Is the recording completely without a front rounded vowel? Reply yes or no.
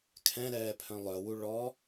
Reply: no